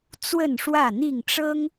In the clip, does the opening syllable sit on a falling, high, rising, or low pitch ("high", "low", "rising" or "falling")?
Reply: falling